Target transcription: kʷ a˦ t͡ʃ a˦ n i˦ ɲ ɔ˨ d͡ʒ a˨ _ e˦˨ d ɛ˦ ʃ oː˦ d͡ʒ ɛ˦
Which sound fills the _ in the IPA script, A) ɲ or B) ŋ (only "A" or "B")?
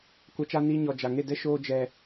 B